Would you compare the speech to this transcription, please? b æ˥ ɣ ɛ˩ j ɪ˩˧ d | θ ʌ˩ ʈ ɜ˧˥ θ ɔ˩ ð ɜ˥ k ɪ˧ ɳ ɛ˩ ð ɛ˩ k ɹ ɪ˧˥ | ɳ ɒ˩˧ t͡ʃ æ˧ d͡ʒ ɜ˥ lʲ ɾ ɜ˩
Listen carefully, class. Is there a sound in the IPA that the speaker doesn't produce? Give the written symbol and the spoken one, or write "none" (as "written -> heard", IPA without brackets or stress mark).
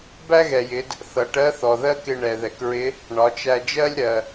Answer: none